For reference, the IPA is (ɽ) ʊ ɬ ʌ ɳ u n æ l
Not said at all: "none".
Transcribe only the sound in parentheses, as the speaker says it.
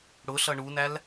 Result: ɽ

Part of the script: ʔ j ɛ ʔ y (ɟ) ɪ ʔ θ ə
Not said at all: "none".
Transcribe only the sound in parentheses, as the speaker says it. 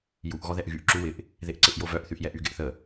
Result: ɡ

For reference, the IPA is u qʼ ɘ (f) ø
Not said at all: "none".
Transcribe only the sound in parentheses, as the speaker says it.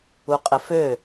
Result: f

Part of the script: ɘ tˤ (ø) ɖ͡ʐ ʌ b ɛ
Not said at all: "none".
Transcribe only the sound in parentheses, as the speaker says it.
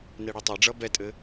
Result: ɛ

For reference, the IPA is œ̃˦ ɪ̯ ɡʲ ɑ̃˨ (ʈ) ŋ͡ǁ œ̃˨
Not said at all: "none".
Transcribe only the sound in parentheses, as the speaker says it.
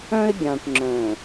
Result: ʈ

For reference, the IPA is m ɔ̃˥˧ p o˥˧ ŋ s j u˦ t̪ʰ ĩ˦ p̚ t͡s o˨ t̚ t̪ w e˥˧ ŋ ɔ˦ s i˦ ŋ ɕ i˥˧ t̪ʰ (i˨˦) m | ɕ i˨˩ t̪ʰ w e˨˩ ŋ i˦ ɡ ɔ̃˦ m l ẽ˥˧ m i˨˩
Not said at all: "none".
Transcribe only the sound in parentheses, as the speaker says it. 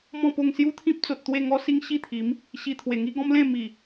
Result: i˨˦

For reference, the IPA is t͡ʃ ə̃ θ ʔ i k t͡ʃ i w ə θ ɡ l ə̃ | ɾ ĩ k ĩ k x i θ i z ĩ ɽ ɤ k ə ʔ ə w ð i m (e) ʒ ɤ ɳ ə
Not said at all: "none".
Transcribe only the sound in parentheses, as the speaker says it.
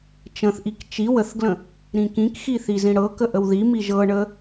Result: i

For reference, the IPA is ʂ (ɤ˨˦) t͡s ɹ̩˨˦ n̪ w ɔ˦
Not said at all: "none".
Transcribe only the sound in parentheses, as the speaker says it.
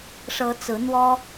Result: ɤ˨˦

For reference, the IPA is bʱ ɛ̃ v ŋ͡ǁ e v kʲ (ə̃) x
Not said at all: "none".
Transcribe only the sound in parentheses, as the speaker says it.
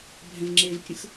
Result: ə̃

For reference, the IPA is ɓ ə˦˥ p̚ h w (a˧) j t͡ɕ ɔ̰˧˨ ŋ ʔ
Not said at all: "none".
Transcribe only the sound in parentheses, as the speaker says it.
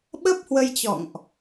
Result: ə˧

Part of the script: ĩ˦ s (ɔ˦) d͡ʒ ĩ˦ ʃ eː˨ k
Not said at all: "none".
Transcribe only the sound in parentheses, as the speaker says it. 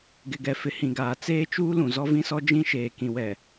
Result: ɔ˦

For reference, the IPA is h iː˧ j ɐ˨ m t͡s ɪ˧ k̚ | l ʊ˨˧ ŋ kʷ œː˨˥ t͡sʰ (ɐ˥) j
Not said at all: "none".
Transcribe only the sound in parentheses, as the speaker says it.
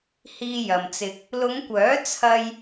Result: ɐ˥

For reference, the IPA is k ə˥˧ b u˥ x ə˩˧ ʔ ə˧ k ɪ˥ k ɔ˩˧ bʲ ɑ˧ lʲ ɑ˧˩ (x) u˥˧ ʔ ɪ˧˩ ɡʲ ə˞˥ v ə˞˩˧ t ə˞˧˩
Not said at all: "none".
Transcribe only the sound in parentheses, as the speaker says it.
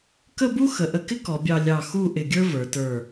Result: x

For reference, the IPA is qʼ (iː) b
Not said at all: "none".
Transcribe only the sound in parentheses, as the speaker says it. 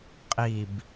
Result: i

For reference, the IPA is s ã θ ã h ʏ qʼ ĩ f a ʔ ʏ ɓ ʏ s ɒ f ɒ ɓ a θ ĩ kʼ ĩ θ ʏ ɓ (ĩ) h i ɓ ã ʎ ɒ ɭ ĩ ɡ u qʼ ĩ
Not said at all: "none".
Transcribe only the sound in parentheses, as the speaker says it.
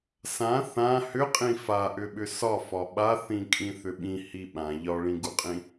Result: ĩ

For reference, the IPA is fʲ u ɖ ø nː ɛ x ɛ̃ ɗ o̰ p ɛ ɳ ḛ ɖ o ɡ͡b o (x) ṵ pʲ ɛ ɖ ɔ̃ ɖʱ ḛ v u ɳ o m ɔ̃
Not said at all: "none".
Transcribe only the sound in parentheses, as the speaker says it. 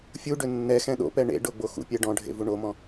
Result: x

